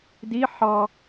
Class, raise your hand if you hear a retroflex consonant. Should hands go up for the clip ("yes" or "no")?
no